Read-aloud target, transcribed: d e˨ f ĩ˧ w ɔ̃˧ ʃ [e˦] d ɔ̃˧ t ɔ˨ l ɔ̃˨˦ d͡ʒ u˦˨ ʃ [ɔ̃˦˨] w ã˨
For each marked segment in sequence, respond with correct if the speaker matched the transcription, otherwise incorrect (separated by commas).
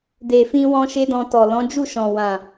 correct, incorrect